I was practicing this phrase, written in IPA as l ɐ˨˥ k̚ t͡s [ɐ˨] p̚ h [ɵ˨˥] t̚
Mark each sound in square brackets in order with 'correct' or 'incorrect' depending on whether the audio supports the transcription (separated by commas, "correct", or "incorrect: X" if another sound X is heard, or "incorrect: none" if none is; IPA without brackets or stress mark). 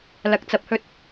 incorrect: ɐ˨˥, incorrect: ɵ˧